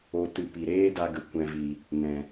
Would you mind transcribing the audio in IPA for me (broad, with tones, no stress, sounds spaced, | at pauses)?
o˨ t ɨ˨ p i˨ ɾ eː˦ d a˧ ɡ ə˨ kʷ ɛ̃˨ v i˨ | n ɛ̃˨